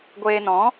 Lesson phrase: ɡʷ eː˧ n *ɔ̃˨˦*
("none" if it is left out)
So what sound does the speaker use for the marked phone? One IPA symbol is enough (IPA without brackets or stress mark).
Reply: ɔ̃˨˦